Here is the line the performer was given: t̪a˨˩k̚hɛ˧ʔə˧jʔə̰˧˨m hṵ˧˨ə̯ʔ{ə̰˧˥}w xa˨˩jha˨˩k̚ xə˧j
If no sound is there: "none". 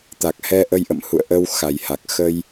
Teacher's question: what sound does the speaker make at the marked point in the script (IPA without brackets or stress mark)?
ə˧